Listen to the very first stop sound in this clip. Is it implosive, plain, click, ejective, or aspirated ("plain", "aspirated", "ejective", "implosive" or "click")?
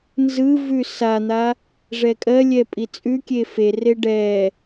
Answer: ejective